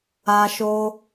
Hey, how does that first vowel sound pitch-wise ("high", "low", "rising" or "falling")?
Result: high